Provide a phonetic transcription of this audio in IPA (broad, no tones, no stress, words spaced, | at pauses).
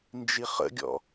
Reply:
nd͡ʒiχə̰ɡʲɔ̰